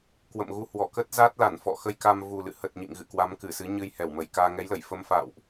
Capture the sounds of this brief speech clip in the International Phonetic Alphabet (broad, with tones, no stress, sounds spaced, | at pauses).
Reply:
k w ə̰˧˨ m ɣ u˧ h w ɔ˧˩ k ə˦˥ t̚ z a˦˥ t̚ l a˧˩ n f ɔ̰˧˨ x ə˧ j k a˧ m v u˨˩ l ɨ̰˧˨ h ə˨˩ t̚ ɲ ḭ˧˨ ŋ ɣ ɨ̰˧˨ k w a˨˦ m k ɨ˧˩ s ɨ˨˦ ɲ ɨ˧ j h ɛ˧˩ w m ə˧˩ j k aː˧ ŋ ɛ˨˦ j l ə˧˩ j f ə˧ m f a̰˧˨ w ʔ